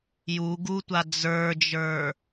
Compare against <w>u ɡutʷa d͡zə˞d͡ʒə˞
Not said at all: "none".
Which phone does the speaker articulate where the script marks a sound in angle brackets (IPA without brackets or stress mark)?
j